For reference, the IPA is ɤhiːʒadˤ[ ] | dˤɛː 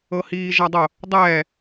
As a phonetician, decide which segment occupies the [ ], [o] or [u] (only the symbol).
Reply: o